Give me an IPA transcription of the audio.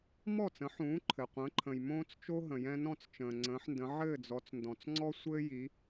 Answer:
mɔ˥˩t͡sə̃˩˥ħũː˩˥ ǃʰɘ˩qʷə̃ː˩˥ ǃʰə̃˩j mõː˥t͡st͡ʃo˥ ɦə̃˩jɛ̃˧nɔ̃˥˩t͡s t͡ʃə̃ː˩ŋ͡ǀə̃ː˩˥ħndə̃˩˥ ʕɘː˥˩d͡zɔ˩˥t͡sndɔ̃˩t͡sŋ͡ǀɔ˥ sʷɘː˥ji˩˥

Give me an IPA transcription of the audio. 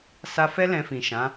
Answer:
sa˧fɛ˦ lɛ̃˧fĩ˨ʃã˨˦

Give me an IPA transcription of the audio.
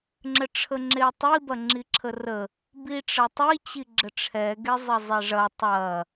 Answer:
ŋ͡ǁəʈ͡ʂʰəŋ͡ǁetˤi bɐŋ͡ǁiǁʰərə | biʈ͡ʂɐtˤi t͡ɕiɡ͡ǁəʈ͡ʂʰɛ ɡezˤɐzˤeʐɐ tˤɐ

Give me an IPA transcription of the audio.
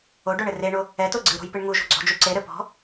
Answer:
oɖoɳɘ reɳo | ɛto ɡ͡ǀɨɾo̤jpɨɳ ŋuʒo̤ ɡ͡ǀɔ̤d͡ʒu ǀeɾɘ pɔ̤

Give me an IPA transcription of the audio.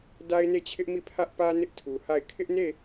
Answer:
da˦ɪ̯ne˦˨t͡ɕʰɪ˦ʔmi˦˨ pʰä˦ʔpä˦ nɪ˦ʔtʰu˨ha˦˨ɪ̯ kʰɪ˦ʔne˦˨

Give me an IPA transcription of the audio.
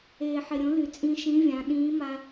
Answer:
eː˩ħɪ˩ɾʲõ˩˧ ly˩t͡sʼĩ˧ʃĩ˧˥vʲã˩˧ ɗĩː˧˥ ma˧

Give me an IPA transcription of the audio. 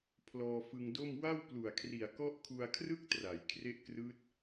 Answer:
pʰlɔː˧fɯ˧ŋdo˥˩m wa˥˩wplu˨˩a̯kʰri˨˩a̯ kɔ˦˥ʔkʰu˧a̯kʰrɯ˥˩k̚tra˩˦j kʰre˦˥ʔkrɯː˦˥t̚

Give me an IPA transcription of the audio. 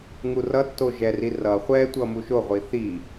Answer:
ŋurʌtːo ʒɛri rʌ χʷɛtʷʌ muʃoʁʷi θi

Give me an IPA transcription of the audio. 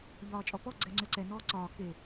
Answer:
ʎɒːt͡ʃʼɔpɔ ɡ͡ǀɛŋ͡ǀøǀɛ nɔːǀɒː ke

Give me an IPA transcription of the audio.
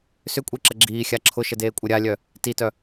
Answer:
sʏkʷʼiǁə ɡ͡ǁiːxʲa ǁʰʊʃədeːkʷʼɪ ɾʲalʲœ | titœ

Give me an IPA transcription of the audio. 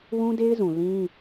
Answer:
wũ˦de˦ɪ̯zũ˨ lĩ˦

